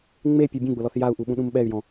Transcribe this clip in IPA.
ŋ͡mepʲu bʲũɡ͡bʊlɔθ jau̯ʔuɓũɗũm ɓɛy̯jɔ̃

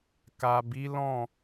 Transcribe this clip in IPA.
ka˨bi˨˦ lɔ̃˦˨

